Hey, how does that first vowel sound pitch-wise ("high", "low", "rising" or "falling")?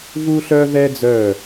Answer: high